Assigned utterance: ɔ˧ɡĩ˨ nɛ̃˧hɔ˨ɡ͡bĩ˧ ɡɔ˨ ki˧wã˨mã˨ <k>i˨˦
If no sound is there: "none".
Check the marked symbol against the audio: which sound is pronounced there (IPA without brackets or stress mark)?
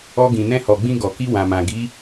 ɡ